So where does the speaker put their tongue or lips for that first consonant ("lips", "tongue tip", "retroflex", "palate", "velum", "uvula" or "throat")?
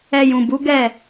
palate